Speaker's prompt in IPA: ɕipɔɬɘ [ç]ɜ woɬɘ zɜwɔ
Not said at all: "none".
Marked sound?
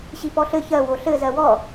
ç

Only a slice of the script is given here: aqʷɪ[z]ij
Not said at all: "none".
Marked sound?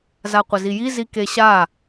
z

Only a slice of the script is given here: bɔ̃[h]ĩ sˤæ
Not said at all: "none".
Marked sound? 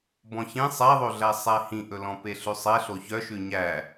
ç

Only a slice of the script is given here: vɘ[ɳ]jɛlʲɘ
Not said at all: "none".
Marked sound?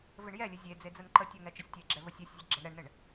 ɳ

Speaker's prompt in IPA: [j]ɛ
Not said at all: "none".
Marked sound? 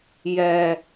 j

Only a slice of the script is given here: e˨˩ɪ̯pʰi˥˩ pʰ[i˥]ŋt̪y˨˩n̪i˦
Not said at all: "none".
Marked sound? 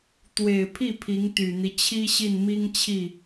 i˧˥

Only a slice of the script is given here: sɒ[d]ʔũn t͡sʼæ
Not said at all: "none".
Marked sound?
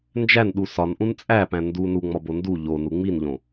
n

